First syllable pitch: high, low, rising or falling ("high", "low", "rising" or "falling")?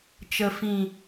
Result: low